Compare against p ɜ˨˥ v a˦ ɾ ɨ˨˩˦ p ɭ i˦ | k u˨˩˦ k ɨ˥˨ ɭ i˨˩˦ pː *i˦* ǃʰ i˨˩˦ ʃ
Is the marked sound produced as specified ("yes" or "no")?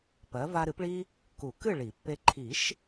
no